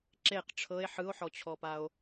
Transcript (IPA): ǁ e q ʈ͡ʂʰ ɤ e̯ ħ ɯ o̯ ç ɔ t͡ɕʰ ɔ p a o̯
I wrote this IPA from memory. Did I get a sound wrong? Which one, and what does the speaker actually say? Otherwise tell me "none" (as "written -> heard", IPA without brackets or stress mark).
ç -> ħ